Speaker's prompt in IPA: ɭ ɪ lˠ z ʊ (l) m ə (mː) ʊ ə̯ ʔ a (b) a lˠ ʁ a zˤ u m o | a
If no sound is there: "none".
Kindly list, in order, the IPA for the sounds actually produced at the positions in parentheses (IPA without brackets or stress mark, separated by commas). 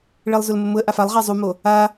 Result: l, m, f